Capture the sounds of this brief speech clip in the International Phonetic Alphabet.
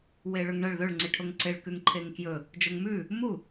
w e ɭ ɵ ŋ ɳ ɐ ɭ ð ɵ ɭ ŋ͡ǀ i ʈʰ o ŋ ǀ e ɭ k ʉ ŋ ǃʰ e ŋ k j ɵ | d͡ʒ o ŋ m ʉ | m u

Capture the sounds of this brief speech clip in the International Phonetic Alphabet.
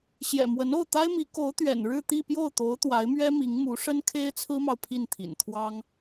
ɕ j ɛ̰˨˩ m w ə˧˥ n o˥˩ ʊ̯ t̪ a˥ ɪ̯ m i˧˥ k o˧˥ ʊ̯ t̪ ɥ ɛ̰˨˩ n ɻ ɻ̩˥˧ t̪ i˥˧ p j o˥˩ ʊ̯ t̪ o˧˥ ʊ̯ t̪ w a˧˥ ɪ̯ m ɥ ɛ˥ m i˧˥ ŋ m u˧˥ ʂ ə˥ n kʰ e˥ ɪ̯ t͡sʰ ɹ̩˥ m ɑ˨ ʊ̯ pʰ i˥˩ n t̪ʰ ḭ˨˩ n t̪ʰ w ɑ˥ ŋ

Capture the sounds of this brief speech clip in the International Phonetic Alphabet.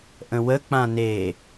ʔ ə̃ w ə k͡p ã n e

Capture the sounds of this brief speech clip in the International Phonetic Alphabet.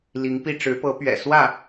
l i˧˥ ŋ p i˥˩ ʈ͡ʂ ɻ̩˧˥ p ɤ˧˥ p ɥ ɛ̰˨˩ s w ä˥˩

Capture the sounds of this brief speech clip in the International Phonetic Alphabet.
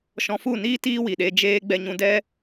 ʃ ɔ̃˧ f u˦˨ n iː˦ t iː˦ w i˨ ɗ e˧ d͡ʒ eː˧ ɡ͡b ɛ˧ ɲ ũ˧ d ɛ˦

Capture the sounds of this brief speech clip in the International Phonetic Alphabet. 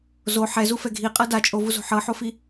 z o ħ ɛ z u f ɛ ɡʱ i qʼ ɤ d a t͡ʃʼ o v u z o̤ ħ ɤ ħ o f i

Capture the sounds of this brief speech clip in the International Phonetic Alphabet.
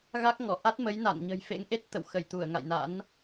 ɣ a˦˥ k̚ ŋ ɔ˧˩ ʔ a˦˥ t̚ m ə˨˦ j n a̰˧˨ n ɲ ə̤˨˩ j f ḛ˧˥ ŋ ʔ e˦˥ t̚ t̪ ə̰˧˨ w x ə˧˩ j t̪ u˧˩ ə̯ ŋ a̰˧˨ j n a̰˧˥ n

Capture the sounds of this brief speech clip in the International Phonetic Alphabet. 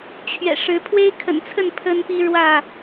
t͡ɕʰ ɥ ɛ̰˨˩ ʂ ɻ̩˨˦ pʰ w e˦ ɪ̯ kʰ ə̰˨˩ n t͡sʰ ə˥˨ n pʰ ə˦ n p i˦ ɻ w ä˥˨

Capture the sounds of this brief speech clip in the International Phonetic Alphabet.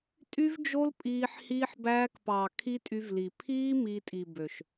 tʼ y˦ v d͡ʒ o˦ l pʼ iː˧ ħ h iː˧ ħ b æː˧ k p ɑː˨ kʰ i˦ tʼ y˧ v l i˨ pʰ iː˦ m iː˧ tʼ i˨ b ø˨ ʃ

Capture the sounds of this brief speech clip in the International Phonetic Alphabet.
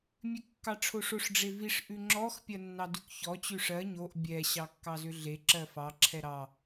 mʲ ʉ kː ɑ ʈ͡ʂʰ o ʂ o ʂ ɖ͡ʐ e v i ʂ ʔ ʉ ŋ͡ǁ ɔ x pʲ ɜ nː ɑ d ʉ k ç ɔ t͡ɕ ʉ ʂ ɜ ɲ o ʔ bʲ ɛ ɕ ɑ kː ɑ z ʏ ɮ e ǁ ɜ f ɑ ǁʰ ɛ ɾ ɑ

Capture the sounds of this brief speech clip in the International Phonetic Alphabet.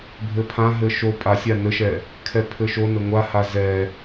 bʱ ɘ pʰ ã ɦ ɘ ʃ o pʼ a sʲ a n ɘ ʃ ɛ | kʰ ɛ pʰ ɘ ʃ o n ɘ ŋʷ a h a z ɛ

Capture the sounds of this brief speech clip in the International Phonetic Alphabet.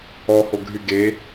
ɔ h o ɡʱ y ɡ e

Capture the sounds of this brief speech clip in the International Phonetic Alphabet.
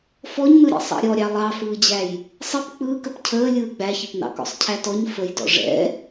f ɔ ɲ n ɯ ɾʲ ɛ̰ sˤ ɑ̰ ɾʲ ɔ ɾʲ ɑ lˠ ɑ f ɯː d͡ʑ æ j | sˤ ə p k͡p ɯː k ə p cʰ əː lʲ ɯː ɡ͡b æ ç ɪ p n ɑ̰ k ɔ̰ sˤ cʰ æ t ɔ ɲ f ə j d ɔ̰ ʐ ɛ̰

